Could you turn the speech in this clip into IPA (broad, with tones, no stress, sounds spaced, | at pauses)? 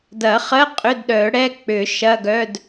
d ɐ˨˩˦ χ ɜ˧˥˧ qʼ ʏ˧˥˧ d ɗ œ˨˩˦ ɽ ɛ˧˥˧ k͡p ʏ˨˩˦ ʃ ɐ˧˥˧ ɡ œ˧˥˧ d